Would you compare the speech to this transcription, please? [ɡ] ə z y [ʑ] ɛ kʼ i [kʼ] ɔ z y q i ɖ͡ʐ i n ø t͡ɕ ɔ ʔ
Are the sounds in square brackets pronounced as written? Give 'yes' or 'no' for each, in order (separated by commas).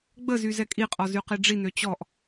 no, no, no